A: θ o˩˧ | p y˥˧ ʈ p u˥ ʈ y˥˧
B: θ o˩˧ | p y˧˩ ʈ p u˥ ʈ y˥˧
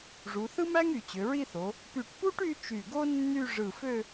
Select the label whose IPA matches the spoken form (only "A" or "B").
B